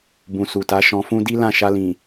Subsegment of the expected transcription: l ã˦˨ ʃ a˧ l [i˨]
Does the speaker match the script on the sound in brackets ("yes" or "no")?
no